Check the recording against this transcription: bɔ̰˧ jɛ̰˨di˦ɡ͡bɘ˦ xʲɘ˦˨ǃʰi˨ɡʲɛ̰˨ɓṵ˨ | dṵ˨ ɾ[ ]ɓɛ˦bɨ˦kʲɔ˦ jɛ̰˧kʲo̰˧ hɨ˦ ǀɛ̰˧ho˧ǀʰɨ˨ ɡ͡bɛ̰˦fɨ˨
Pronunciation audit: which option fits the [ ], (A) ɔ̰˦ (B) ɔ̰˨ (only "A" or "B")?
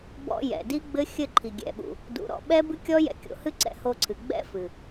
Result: B